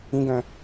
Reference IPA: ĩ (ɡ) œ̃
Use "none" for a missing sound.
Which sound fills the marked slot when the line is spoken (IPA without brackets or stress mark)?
ɡ